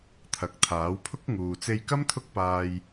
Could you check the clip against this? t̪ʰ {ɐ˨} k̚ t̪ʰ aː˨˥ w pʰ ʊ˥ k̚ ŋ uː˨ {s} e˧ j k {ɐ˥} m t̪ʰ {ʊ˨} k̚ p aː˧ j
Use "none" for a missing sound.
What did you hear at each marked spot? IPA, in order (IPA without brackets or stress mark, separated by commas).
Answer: ɐ˨, t͡s, ɐ˥, ʊ˥